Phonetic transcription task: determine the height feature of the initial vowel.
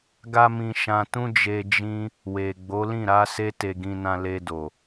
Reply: low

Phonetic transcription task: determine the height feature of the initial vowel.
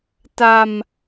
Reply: low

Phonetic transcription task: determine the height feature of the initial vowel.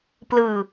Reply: high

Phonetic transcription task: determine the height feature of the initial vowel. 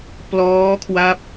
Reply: mid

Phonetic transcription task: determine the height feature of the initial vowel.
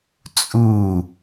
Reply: high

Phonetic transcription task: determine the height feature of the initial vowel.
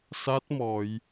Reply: low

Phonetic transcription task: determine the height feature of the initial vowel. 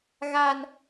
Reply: low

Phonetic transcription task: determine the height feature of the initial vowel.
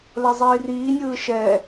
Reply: mid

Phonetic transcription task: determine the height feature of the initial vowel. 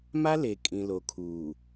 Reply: low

